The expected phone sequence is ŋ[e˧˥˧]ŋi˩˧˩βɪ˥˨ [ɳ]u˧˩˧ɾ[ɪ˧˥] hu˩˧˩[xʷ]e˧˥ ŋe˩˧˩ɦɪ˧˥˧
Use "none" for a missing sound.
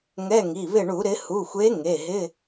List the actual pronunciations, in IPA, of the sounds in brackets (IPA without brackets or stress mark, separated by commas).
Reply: ɛ˧˥˧, ɳ, ɪ˩˧, xʷ